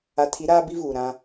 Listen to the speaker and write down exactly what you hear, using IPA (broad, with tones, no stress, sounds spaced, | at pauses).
a˨ tʰ i˨˦ ɾ aː˦ b i˦ v uː˨ ɾ ã˦